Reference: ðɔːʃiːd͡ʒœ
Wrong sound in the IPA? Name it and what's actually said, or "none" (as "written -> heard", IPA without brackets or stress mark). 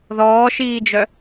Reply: none